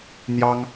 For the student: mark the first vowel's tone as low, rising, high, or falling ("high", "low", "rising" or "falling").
high